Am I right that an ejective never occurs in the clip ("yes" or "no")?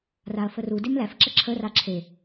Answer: yes